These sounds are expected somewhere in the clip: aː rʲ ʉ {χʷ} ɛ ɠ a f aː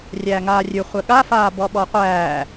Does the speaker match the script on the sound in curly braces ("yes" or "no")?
yes